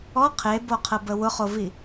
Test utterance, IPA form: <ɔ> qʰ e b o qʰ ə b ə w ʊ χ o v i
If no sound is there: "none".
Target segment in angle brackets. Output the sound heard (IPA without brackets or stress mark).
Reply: ɔ